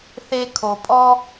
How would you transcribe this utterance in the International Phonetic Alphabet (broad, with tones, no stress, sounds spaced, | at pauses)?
θ e˦ kʰ o˨ pʼ ɔ˦